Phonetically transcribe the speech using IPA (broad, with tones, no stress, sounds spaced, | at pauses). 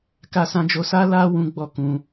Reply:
k a˦ s ã˦ d͡ʒ o˦ s a˦ l a˦ w ũ˦ ɡ͡b ɔ˦ k ũ˧